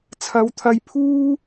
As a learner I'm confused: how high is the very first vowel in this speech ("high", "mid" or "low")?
low